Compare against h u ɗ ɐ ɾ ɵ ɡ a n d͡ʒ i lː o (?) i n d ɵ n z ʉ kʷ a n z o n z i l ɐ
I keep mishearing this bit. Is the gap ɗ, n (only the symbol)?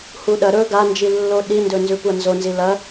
ɗ